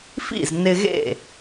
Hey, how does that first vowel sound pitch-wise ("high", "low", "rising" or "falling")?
falling